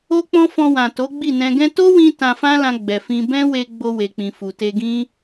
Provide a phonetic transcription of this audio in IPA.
o˦k͡pɔ̃˦ fɔ̃˧wã˨ to˨˦ɡ͡bi˦˨nɛ̃˧ ɡɛ̃˧to˦wĩ˧ tã˧fã˦lã˧ ɡ͡bɛ˨fĩ˧ bɛ̃˦we˧ ɡ͡bo˧we˨k͡pĩ˨fu˨ te˧ɡĩ˦

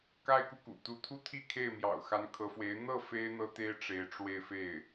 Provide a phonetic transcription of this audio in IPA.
ka˥˧ɪ̯ku˥˩kṵ˨˩ t̪u˧˥t̪ʰu˥ t̪ʰi˥kʰe˥˩ɪ̯mjɑ̰˨˩ʊ̯ xa˧˥nkʰɤ˧˥fwe˧˥ɪ̯ n̪ɤ˥˩ fe˥ɪ̯n̪ɤ˥t̪e˥ɪ̯ ʈ͡ʂe˧˥ɪ̯ʈ͡ʂwe˥˧ɪ̯fe˥˩ɪ̯

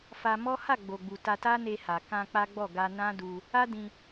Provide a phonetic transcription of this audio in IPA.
fa˧mɔ˦ ha˦˨ɡ͡bo˨ɡ͡bu˨ ta˧ta˦ne˧ha˨ kã˧ k͡pa˦ɡ͡bɔ˦˨ ɡa˧nã˦du˧ | a˦dĩ˧

